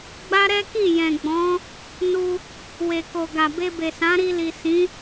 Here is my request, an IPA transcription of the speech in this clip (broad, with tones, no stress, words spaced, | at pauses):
ɡ͡ba˦ɾɛ˦ki˦˨ jɛ̃˨ɡ͡bɔ̃˨˦ | nu˧ | we˨ko˨ɡa˨ be˧be˨sã˨˦ɾi˧ li˨sĩ˨˦